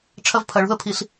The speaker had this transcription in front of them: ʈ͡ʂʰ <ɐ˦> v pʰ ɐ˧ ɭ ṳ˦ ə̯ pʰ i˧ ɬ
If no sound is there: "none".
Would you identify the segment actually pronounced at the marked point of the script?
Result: ɐ˦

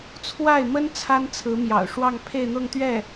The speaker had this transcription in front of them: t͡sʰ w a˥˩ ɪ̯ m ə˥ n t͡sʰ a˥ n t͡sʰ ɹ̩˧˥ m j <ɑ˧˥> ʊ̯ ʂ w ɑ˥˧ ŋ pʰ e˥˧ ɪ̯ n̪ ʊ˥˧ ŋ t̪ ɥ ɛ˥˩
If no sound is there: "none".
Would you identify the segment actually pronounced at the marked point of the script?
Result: ɑ̰˨˩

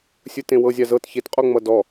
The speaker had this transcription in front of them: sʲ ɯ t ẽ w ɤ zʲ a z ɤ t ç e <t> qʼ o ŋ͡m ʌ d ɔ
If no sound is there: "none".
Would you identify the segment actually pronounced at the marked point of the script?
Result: t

